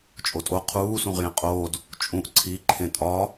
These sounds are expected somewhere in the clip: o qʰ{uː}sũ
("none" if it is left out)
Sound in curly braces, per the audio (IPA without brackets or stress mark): uː